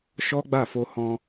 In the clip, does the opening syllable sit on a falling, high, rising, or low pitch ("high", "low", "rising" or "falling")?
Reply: high